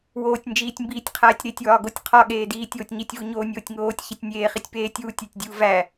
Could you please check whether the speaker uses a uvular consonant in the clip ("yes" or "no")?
yes